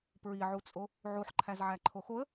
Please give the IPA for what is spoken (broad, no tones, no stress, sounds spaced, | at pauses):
p ɹ i ʕ u t͡sʼ o | ʕ u ħ ǃʰ æ z ʕ æ ǃʰ o x o ə̯